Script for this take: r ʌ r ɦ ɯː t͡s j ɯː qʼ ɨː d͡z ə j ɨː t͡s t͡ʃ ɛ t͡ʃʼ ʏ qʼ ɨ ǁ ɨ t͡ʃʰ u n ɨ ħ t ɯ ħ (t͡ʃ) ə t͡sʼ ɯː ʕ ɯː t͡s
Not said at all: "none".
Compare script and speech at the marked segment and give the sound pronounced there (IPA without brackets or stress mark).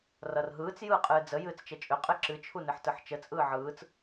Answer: t͡ʃ